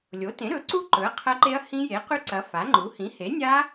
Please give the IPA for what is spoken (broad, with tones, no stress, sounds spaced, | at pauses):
lʲ o˩˥ t ẽ˩˥ ɾ ɵ˩˥ ǀ u˦˥ ǃ ɵ˩˥ ɐ̯ qʰ ɐ˦˥ ǃ e˦˥ ɐ̯ h ĩ˦˥ j e˩˥ q ʉ˦˥ ǀ ɐ˩˥ f a˩˥ ŋ͡ǃ u˩˥ h ĩ˩˥ h e˩˥ nʲ a˦˥